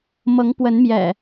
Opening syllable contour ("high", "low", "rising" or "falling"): rising